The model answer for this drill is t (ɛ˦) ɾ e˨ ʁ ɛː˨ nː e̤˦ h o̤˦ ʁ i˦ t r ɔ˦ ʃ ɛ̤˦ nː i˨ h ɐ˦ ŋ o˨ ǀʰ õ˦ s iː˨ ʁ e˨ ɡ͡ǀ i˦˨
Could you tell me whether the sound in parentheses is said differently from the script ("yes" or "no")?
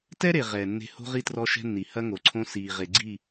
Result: no